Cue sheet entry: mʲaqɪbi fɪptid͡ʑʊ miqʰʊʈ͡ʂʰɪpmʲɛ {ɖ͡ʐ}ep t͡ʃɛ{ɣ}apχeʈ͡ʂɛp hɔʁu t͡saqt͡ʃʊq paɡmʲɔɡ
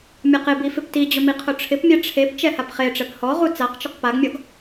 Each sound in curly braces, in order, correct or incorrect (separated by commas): incorrect, incorrect